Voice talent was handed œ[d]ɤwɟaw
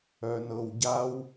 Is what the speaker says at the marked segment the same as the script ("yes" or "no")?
no